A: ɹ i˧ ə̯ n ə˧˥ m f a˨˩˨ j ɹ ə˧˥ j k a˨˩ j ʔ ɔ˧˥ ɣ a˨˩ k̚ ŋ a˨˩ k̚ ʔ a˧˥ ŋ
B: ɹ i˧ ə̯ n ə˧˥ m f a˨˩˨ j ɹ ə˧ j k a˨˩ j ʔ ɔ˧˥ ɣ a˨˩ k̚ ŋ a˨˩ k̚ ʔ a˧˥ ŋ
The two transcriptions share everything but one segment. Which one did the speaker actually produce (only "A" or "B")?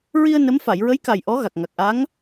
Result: A